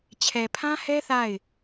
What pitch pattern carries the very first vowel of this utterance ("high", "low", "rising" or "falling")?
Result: low